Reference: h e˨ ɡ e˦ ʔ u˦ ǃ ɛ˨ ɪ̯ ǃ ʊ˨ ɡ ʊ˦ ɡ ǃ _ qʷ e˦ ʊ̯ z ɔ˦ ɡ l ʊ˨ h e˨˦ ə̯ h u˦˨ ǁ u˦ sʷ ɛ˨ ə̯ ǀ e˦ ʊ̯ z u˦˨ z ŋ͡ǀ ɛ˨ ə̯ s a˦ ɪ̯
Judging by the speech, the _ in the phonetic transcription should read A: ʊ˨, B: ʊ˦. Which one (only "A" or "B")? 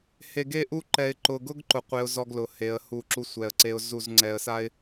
A